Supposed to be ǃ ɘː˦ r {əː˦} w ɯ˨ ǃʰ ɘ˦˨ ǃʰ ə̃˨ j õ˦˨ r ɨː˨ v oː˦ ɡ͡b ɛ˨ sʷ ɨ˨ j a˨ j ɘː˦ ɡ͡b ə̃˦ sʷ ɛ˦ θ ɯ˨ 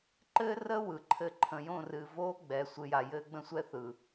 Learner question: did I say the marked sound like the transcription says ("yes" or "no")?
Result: yes